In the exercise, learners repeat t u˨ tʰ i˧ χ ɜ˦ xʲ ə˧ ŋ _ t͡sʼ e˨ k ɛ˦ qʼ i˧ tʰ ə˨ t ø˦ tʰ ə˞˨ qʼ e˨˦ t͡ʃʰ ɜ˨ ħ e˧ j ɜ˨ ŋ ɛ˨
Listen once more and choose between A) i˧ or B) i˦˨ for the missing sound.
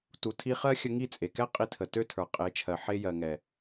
B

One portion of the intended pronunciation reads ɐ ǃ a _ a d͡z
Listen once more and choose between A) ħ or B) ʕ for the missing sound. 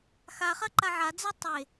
B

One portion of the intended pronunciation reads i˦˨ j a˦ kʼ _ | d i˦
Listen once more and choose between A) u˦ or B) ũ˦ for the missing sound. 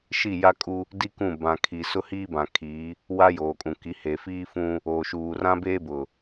A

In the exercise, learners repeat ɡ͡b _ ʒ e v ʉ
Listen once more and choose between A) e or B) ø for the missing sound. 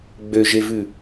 B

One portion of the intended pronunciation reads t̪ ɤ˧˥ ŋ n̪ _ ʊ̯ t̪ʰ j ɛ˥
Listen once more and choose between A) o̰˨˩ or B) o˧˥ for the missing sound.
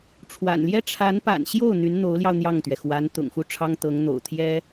A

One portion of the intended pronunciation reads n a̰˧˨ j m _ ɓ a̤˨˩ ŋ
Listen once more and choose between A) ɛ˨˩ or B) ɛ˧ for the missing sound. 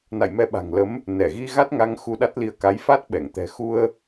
B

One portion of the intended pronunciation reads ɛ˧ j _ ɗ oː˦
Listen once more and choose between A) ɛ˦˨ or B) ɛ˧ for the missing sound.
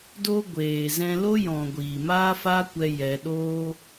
B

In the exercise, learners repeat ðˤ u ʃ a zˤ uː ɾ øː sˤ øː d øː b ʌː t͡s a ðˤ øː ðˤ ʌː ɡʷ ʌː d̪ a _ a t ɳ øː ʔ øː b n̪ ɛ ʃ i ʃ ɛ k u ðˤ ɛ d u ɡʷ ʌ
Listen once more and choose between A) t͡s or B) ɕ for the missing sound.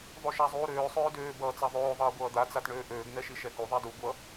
A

